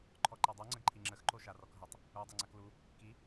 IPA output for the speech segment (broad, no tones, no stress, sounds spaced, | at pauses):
ǃʰ ɔ ǃ e dˤ u ŋ͡ǀ ə ɡ ǃʰ i ŋ͡ǁ ə x ǃ o ʃ a r ɔ k ɦ ə tˤ | u dˤ ɛ ŋ͡ǀ a k l u | k i